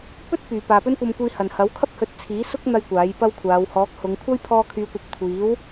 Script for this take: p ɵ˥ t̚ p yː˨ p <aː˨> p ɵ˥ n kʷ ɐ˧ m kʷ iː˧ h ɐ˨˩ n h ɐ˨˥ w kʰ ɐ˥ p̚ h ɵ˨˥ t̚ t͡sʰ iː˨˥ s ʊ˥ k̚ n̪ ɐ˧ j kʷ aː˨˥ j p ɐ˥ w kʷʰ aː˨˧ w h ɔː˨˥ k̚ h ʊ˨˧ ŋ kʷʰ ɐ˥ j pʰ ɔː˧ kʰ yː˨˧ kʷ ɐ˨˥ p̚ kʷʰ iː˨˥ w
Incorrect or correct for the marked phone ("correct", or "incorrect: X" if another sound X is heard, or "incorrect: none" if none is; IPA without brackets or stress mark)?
correct